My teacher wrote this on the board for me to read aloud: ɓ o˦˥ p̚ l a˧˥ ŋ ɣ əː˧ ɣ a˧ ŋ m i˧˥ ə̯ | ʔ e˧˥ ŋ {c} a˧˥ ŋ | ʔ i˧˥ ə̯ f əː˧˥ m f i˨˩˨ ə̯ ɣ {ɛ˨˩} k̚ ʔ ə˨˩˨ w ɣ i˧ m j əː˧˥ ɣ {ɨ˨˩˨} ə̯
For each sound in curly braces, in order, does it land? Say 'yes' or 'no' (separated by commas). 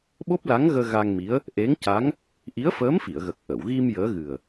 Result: yes, no, no